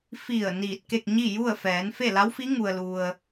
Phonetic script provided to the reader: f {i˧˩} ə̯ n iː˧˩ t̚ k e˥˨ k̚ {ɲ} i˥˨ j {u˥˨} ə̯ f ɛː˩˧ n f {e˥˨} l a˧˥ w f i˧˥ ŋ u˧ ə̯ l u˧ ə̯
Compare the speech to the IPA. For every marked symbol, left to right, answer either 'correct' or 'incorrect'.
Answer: correct, correct, correct, correct

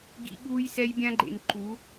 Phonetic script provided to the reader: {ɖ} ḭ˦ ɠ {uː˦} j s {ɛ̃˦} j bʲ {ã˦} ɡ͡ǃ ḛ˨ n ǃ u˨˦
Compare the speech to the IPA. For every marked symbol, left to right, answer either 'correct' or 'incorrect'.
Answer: incorrect: ɡ, correct, incorrect: ɛ˦, correct

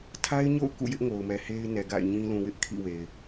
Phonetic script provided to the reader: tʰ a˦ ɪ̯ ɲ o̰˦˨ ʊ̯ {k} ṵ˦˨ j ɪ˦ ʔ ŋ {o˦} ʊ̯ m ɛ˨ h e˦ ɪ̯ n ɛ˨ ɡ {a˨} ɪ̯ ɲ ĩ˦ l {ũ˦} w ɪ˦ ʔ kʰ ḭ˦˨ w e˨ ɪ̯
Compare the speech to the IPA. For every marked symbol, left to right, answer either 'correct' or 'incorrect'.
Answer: correct, incorrect: o˨, incorrect: a̰˦˨, incorrect: ũ˨

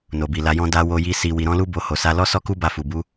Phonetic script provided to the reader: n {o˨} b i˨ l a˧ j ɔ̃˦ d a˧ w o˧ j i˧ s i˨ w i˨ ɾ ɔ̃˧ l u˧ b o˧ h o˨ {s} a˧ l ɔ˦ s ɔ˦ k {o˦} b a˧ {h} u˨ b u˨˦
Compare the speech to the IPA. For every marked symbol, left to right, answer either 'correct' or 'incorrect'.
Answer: correct, correct, incorrect: u˦, incorrect: f

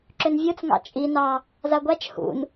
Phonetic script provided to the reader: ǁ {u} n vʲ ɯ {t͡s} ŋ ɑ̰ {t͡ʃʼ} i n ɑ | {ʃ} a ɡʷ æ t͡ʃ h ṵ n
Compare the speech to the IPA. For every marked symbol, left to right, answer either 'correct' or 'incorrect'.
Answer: incorrect: ʏ, correct, correct, incorrect: z

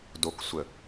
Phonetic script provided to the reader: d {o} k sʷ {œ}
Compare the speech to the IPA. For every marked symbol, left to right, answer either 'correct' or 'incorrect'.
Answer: correct, incorrect: ə

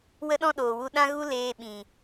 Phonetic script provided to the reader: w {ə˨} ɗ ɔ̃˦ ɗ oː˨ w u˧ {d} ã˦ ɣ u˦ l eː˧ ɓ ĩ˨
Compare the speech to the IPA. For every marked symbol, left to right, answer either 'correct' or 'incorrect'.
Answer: incorrect: ə˦, incorrect: ɗ

